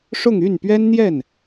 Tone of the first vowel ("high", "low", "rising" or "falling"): falling